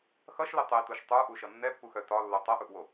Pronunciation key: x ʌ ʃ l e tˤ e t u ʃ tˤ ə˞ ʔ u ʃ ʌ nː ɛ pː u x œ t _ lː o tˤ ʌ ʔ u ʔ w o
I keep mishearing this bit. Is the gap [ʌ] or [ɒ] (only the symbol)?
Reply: ɒ